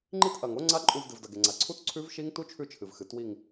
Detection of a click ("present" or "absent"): present